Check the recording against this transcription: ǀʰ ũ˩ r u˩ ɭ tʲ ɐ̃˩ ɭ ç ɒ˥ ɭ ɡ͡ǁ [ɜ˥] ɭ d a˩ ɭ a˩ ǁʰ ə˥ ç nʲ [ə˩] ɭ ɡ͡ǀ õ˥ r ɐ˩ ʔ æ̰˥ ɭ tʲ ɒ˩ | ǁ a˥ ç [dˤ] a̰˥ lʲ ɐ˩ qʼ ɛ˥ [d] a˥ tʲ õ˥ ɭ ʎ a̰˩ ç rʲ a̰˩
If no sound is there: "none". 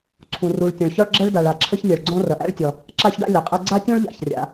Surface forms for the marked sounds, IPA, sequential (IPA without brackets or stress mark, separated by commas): ɜ˥, ɛ˩, ɖ, ɡ͡ǀ